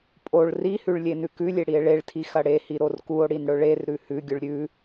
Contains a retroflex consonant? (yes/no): yes